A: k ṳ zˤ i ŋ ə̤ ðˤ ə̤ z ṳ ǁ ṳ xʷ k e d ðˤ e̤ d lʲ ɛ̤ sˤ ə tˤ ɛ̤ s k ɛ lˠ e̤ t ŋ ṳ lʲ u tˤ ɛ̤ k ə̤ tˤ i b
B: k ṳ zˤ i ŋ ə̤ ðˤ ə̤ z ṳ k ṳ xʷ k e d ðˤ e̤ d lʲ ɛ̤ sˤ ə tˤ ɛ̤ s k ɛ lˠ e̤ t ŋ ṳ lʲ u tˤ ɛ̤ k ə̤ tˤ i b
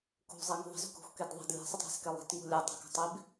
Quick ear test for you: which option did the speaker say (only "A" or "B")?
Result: B